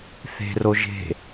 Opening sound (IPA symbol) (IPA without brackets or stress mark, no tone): θ